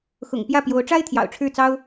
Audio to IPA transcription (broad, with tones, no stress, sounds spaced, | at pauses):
x ʊ̰˨˩ ŋ p j ä˥˩ p j o˧˥ ʊ̯ ʈ͡ʂ a˥ ɪ̯ t̪ʰ j ɑ̰˨˩ ʊ̯ ʈ͡ʂʰ ɻ̩˥˩ t͡s ɑ˥ ʊ̯